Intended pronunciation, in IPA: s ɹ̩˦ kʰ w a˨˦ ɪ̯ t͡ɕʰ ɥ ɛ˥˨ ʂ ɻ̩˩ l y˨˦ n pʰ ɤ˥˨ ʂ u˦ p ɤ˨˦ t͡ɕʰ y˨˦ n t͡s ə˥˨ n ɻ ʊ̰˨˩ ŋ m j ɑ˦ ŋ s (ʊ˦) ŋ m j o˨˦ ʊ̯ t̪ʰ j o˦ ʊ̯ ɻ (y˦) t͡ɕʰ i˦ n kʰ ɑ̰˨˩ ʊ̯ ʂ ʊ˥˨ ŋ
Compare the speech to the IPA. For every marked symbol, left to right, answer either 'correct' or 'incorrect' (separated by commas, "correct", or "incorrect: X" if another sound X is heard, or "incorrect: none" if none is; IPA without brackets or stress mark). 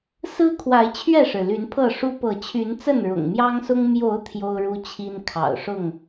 correct, incorrect: u˦